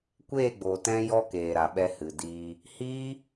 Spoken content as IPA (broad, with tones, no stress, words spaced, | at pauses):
kʷeː˦˨ɡ͡boː˨tɛ̃˧ jɔ˦keː˨ɾa˨ ɓɛ˧hɨ˨diː˧ | hiː˦